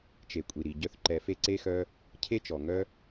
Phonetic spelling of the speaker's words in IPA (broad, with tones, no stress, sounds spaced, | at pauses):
t͡ʃ e˨ kʷʼ i˨ ɾ i˨ ɟ œ˧ θ ǃ ɛ˨ f e˦ ǀ e˧ x œ˧ | cʰ e˦ t͡ʃ ɔ˨ ŋ œ˦